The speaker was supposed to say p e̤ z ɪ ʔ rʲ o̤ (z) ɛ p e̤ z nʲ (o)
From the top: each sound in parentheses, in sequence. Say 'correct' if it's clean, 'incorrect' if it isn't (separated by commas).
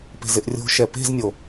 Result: incorrect, correct